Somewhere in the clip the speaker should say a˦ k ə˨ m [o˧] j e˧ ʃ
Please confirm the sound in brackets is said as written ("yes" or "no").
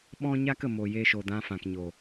no